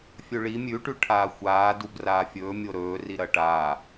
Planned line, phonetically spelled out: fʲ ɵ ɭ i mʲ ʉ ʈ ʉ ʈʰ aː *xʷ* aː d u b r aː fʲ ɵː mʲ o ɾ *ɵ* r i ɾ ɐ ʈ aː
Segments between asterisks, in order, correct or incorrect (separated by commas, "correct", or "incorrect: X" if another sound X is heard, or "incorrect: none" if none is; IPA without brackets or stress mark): correct, incorrect: ɵː